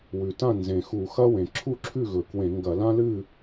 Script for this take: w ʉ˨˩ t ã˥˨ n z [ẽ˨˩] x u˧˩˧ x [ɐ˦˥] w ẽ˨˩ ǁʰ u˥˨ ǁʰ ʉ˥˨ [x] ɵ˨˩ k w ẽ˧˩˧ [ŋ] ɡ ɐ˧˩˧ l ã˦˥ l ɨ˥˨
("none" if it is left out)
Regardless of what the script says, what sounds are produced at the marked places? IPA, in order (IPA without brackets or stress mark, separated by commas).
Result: ẽ˨˩, ɐ˦˥, ɣ, ŋ